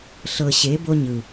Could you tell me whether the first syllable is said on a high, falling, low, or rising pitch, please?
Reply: low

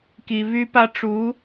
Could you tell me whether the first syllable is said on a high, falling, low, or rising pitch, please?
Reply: low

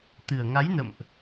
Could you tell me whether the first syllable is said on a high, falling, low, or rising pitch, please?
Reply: low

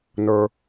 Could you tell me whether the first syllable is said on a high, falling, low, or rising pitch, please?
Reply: high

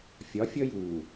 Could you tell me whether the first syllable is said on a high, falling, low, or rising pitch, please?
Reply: rising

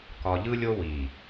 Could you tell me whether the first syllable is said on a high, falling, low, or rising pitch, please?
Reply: low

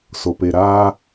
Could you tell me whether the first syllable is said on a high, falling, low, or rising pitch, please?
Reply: low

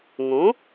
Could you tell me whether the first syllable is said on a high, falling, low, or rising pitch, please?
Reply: rising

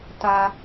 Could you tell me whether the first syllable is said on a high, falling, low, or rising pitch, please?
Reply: high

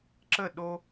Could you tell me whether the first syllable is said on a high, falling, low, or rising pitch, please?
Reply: falling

